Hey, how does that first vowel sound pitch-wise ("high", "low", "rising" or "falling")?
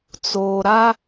low